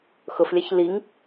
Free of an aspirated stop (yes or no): yes